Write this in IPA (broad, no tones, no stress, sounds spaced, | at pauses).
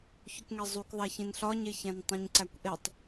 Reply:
ç o k ŋ e zˤ u k ðˤ æ ç ĩ n ɬ ɒ ɲ e ç æ̃ n tˤ ĩ ɲ ǀ æ kʷ ʔ e tˤ